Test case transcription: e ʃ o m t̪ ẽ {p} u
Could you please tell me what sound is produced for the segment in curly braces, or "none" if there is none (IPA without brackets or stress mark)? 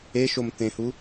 h